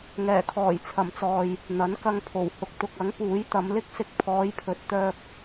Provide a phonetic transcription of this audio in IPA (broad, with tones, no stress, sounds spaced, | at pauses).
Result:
ŋ ɛː˨˩ kʰ ɔː˨˩ j t͡sʰ ɐ˨˩ m t͡s ɔː˨ j | n̪ ɐ˨˥ n k ɐ˧ ŋ pʰ o˨˩ w h ʊ˨ k̚ t̪ ʊ˨ k̚ ɐ˨˥ ŋ p uː˨˥ j t̪ ɐ˨˧ m l ɪ˥ k̚ s ɪ˧ k̚ pʰ ɔː˨˧ j pʰ ɵ˨ t̚ t̪ œː˧ k̚